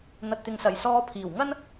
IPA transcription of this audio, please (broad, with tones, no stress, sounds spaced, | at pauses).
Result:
n̪ ɐ˨ t̚ t̪ ɪ˨ ŋ s ɐ˨˩ j s ɔː˧ pʰ iː˨˩ w ŋ ɐ˥ n